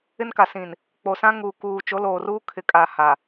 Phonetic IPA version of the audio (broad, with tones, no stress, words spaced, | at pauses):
ɪ˦nka˨sĩ˨n | k͡po˨sã˦ ŋuː˨kuː˨ t͡ʃo˨˦ loː˨ruː˦ kʰɪ˨kʼa˨ ha˨